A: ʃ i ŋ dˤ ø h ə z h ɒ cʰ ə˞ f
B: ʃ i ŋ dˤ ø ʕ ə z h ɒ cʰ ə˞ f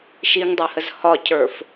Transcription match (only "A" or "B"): A